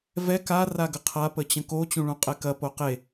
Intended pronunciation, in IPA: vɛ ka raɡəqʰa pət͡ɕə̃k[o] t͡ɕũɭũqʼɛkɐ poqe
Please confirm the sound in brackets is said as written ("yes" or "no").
yes